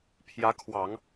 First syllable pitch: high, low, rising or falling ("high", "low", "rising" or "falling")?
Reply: rising